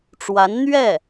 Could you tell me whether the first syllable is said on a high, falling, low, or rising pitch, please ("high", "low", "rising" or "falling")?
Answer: rising